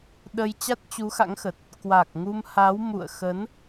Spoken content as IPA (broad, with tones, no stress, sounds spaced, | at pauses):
ɗ ə˧ j t͡ɕ a˦˥ t̚ t͡ɕ u˨˦ x a̰˧˥ ŋ x ə˨˩ t̚ | k w a˨˩ k̚ ŋ u˧ m h a˨˦ w m ṵ˧˨ ə̯ x ə˨˦ n